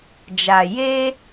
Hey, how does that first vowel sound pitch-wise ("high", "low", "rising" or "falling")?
low